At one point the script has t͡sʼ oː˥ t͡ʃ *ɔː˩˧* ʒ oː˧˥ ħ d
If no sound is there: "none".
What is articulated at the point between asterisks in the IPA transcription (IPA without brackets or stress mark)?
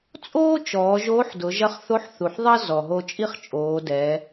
ɔː˩˧